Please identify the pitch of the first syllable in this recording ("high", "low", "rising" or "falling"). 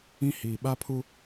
high